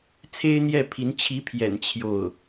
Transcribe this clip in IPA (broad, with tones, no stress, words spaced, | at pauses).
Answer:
t͡sʰe˥ɪ̯n̪jɛ˥˩pʰi˧˥n t͡ɕʰi˧˥pʰjɛ̰˨˩n t͡ɕʰjo˥˩ʊ̯